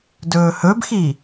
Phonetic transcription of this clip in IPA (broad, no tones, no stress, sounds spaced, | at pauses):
d ɵː h ɵ b x i